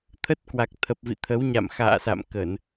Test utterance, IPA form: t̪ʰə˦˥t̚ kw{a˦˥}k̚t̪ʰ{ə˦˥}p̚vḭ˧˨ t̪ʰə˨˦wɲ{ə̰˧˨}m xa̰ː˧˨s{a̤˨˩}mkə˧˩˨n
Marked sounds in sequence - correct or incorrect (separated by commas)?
incorrect, incorrect, incorrect, incorrect